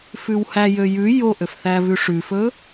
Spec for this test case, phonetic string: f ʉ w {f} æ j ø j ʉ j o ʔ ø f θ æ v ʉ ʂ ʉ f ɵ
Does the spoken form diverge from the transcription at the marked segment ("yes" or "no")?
yes